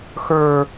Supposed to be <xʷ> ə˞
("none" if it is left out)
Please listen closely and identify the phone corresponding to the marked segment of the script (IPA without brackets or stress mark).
x